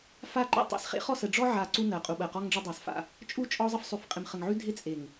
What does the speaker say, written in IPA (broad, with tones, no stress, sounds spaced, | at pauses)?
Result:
f a˦ ǃ ḛ˦ tˤ ḛ˨˦ s χ ḛ˦ χ ɔ˨ s ə˨ ɖ͡ʐ ɔ˦ ʕ a˨ ǀ u˦ n ɜ˨ qʼ u˨ ɓ ɜ˨ q ɔ˦ ŋ ɖ͡ʐ ɪ˦ dˤ a˨ s f a̰˦˨ | t͡ʃʼ u˦˨ t͡ʃʼ ɔ˦ zˤ ə˦ f sˤ ʉ˨ f qʼ ɪ˨ m χ ə˨ ŋ ʕ ʉ˦ dʱ ɪ˦ t͡sʼ e˨ ŋ